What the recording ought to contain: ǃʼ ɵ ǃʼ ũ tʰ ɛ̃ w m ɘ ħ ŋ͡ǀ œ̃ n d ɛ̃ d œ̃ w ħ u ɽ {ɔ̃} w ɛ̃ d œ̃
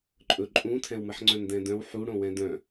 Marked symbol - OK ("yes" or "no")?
no